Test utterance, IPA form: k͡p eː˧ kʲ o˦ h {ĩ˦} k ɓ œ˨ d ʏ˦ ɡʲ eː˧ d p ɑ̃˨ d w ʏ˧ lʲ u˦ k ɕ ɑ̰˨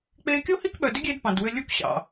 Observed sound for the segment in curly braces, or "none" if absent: i˦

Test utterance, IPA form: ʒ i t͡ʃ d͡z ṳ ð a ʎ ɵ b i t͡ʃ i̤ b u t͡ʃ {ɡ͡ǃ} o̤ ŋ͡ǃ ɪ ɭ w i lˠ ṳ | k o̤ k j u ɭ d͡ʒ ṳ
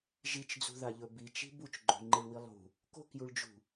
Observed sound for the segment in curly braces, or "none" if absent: ɡ͡ǃ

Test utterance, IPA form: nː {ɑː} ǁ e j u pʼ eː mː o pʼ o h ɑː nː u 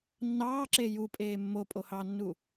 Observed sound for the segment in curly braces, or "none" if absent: ɑː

